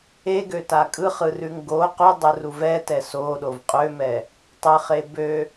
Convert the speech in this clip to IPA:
eɡøta kʼɯχɯrʉŋ ɡo qudˤɯru vɛtɛ soɗov qʼømɛ | tˤɯχe bø

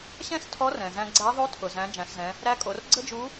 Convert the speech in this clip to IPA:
ɕɛ̃˥stʰɔ˧˥ rɛ̃˩zæ̃˧ɡ͡ǀæ˧˥ ðˤo˧˥tʰʊ˩zæ̃˩˧ d͡ʒæ̃˩˧szɛ̃˩˧ | ɾæ˧˥kʼo˩˧r ɡ͡ǀə˥d͡ʒu˧˥

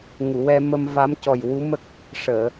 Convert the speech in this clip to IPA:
ŋu˨˩˨wɛ˧ mə˧mva˧˥mcɔ˨˩j wu˧˥mə˦˥k̚ | ʂəː˨˩˨

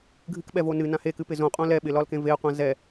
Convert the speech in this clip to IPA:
ɡʱɨkɓɛvo nɨnã hekɨpɪ zõqʼõ lɛ ɓɪlɒlkẽ veə̯qʷã zɛ

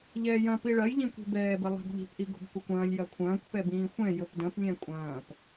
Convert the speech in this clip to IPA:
ʎɛːjɐ̃ piɭɐjʎĩkʷi̤ bɛːbɘ lˠɛ̤bʎi̤pʔi ɡo̤bkʷɛkʷɐ̃ːlʲ jɐkʷʰɐ̃ːkʷ pɛbĩːxʷɛ̃ jɵpdɐ̃p lʲɛ̃kʷʼɐ̃ːp

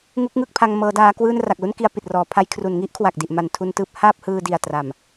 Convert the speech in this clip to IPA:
ŋu˦˥k̚ ŋɯ˥˩k̚pʰa˧ŋ mɤː˦˥daː˦˥ kwɯː˥˩n ra˨˩k̚lu˥˩nki˧a̯ pi˨˩t̚rɔː˩˦pʰa˧j kʰru˩˦nŋi˦˥ʔkʰwa˨˩k̚ di˨˩ʔ ma˩˦ntʰu˧ntɯː˥˩p̚ haː˥˩p̚ hɯː˧di˨˩a̯ tra˨˩m

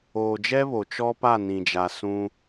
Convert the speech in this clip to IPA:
oː˨d͡ʒɛ˦βo˨ t͡ʃɔ˦pa˦˨nĩ˨d͡ʒa˨ sũ˦

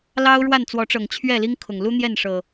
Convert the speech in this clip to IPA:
lɑ˦ʊ̯ɻwa˥˨nt͡swɔ˨˦ʈ͡ʂɤ˨˩ŋ t͡ɕʰɥɛ˥˨li˦ŋkʰʊ˨˩ŋ lu˦n̪jɛ˥˨nʂɤ˨˩

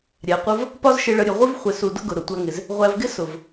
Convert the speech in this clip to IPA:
ɾʲæ˨qʷə˦v | pɒ˦zʃɪ˧ɭə˧ɾʲə˨ ʁʷɪ˦v χʷɪ˨su˨ dʊ˦ɡʊ˨ ɾʊ˨tʷæ˧ŋɪ˨z | ʁʷæ˧vɡɪ˦ sʊ˨v

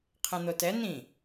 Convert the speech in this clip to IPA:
qʰẽn̪otɛ n̪ĩ

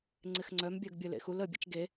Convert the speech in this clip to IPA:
ŋ͡ǀɪxŋ͡ǀœm bʲœɡbʲə lḛxul ə bʲḛt͡ʃɡe

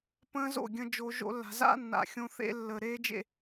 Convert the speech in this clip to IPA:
pə̃ː˦zo̰˦˨ɡʲə̃˧ d͡ʒo˧ʒo̰˦ lːa̤˨za̰˦ nːa̰˨xʲõ˧θḛ˧lːə˨ ɾeː˦d͡ʒḛ˦˨

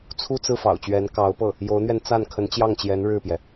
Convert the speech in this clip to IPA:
t͡sʰu˥˧t͡sɹ̩˥˩ fɑ̰˨˩ʊ̯t͡ɕɥɛ˧˥nkɑ˧˥ʊ̯pɤ˥˩ | jo˧˥ʊ̯n̪ɥɛ˧n t͡sa˥˩n kʰə˧˥nt͡ɕjɑ˥˩ŋt͡ɕjɛ˧˥n ɻɻ̩˥˩pjɛ˩

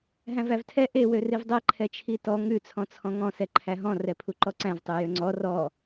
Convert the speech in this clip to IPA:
ɦæ̃vævtʰɛ ʔe wørivdˤɛ ǃʰɛt͡ʃʰitɔ ŋʉ t͡sʰɔ̃t͡sʰɔ̃ŋɔ̃ sɛǃʰæɦɔ̃ rɛpʰuǃɔǀæ̃v tˤøjøŋ͡ǀɔ rɔ

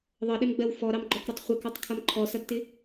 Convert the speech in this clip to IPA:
ðˤʌɗɪmɡ͡bɜw fɔɾɑmɡ͡ǃɔkɾʌtˤ χʷɪkɔtˤkʰʌm ǃʰɔsʌdtɪ

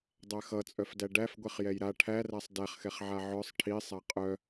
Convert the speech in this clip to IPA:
dˤæxʌt͡sʼœfdæ ɖæfɡʷɛχ jɛjɾa ʈʰæræsˤ dæχxɛχʕa ʕœsˤ ʈʰisˤæ qʼœ

